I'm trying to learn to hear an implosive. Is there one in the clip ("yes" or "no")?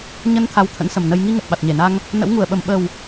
yes